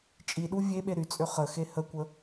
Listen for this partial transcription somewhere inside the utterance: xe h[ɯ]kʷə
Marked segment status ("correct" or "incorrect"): incorrect